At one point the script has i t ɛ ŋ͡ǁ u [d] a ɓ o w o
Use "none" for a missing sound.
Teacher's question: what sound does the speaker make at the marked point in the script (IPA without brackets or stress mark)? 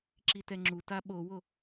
t